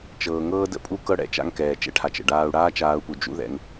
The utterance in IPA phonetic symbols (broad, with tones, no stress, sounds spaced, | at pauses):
t͡ʃ ɤː˩ ŋ ɤː˦ d ə̰˦ pʼ u˦ k ɤ˦ ɽ ɛ̰˨ t͡ʃ a̰˦ ŋ k ɛː˩ t͡ʃ ɛ̰˦ ʈʰ a˩ t͡ʃ ə̰˩ ɖ aː˦ u̯ ɽ aː˥ t͡ʃ aː˦ u̯ p u˨ d͡ʒ ṵ˦ ð ɛ̰˨ ŋ